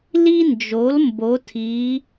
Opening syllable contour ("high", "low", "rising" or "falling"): high